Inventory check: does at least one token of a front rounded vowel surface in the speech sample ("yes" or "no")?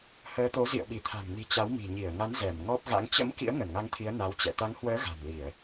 no